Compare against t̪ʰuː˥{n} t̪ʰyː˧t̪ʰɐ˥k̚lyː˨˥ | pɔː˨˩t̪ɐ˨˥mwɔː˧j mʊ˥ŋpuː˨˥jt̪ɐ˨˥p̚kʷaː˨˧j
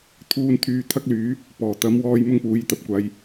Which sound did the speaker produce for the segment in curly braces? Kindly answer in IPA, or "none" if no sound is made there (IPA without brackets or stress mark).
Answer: n